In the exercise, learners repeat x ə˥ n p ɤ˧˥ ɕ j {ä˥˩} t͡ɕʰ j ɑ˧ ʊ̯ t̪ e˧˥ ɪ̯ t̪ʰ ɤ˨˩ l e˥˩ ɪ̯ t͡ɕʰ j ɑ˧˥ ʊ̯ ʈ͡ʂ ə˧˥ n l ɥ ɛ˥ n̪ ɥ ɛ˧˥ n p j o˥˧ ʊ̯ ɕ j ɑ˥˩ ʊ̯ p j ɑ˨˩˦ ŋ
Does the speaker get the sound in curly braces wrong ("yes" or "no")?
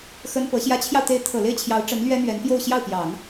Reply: yes